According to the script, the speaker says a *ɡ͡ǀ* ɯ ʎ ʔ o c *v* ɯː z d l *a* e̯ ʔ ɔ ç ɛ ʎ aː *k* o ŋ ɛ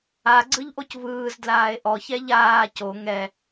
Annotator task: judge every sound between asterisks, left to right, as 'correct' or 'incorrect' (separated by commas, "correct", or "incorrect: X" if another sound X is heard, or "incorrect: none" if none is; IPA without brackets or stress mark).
correct, correct, incorrect: aː, incorrect: c